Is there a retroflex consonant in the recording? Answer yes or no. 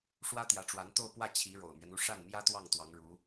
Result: yes